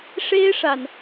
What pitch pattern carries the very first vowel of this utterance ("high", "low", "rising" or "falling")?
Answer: high